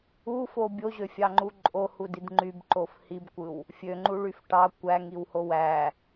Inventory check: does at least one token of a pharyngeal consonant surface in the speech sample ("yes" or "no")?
no